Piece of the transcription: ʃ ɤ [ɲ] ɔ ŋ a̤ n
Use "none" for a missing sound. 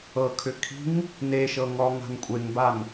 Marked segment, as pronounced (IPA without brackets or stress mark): ŋ